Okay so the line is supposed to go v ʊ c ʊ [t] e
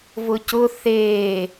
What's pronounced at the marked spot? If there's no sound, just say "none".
θ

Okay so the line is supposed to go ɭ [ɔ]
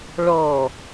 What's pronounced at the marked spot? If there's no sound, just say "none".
ɔ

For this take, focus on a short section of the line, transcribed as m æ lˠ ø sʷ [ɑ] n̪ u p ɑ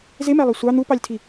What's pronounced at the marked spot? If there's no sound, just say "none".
ɑ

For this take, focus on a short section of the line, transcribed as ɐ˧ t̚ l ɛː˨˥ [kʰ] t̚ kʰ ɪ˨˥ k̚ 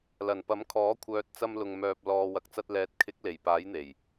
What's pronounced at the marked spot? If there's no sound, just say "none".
none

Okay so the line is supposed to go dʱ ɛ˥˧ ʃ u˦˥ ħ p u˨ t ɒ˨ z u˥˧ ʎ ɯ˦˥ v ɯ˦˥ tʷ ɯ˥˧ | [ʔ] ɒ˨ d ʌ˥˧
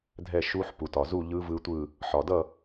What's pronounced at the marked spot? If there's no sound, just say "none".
ħ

